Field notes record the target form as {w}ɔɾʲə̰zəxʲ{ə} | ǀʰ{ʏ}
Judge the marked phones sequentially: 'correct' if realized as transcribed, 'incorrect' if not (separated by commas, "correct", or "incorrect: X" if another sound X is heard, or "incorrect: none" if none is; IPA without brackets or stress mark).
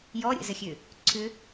incorrect: j, incorrect: ø, correct